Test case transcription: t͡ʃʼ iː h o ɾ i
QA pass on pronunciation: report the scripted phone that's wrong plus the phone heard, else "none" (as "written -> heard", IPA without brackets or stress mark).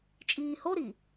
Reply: none